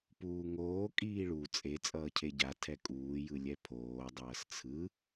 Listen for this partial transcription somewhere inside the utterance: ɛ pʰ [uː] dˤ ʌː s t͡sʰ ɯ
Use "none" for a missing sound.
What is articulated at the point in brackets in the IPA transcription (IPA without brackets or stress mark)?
oː